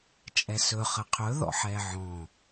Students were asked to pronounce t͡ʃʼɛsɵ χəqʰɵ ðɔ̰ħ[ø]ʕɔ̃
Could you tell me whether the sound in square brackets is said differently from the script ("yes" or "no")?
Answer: yes